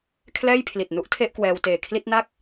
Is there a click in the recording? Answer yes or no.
no